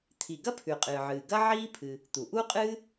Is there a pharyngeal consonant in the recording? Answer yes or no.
yes